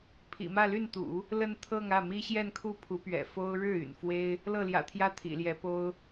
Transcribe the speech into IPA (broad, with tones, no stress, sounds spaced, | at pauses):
pʰ ḭ˨˩ m ä˥˧ l y˥˩ n t̪ ṵ˨˩˦ | l ə˥˧ n t̪ʰ ɤ˥˧ ŋ ä˥˩ m i˥ ɕ j ɛ˥˧ n kʰ u˥˩ pʰ u˧˥ p ɥ ɛ̰˨˩ f o˥ ʊ̯ ɻ ɻ̩˥˩ y̰˨˩ n f w e˥ ɪ̯ | l ɤ˥˩ l j ä̰˨˩ t̪ʰ j ä˥ t̪ʰ ḭ˨˩ l j ɛ˧˥ p o˥ ʊ̯